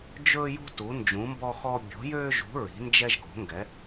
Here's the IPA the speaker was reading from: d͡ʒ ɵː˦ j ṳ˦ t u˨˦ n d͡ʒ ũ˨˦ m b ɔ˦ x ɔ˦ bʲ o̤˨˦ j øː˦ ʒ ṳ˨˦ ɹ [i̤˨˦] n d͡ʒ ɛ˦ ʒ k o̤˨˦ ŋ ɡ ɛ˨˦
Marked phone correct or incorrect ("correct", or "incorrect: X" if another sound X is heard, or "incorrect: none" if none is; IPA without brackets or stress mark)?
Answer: correct